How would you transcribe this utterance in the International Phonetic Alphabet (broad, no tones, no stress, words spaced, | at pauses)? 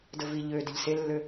dəvi ʎø dəʎselːø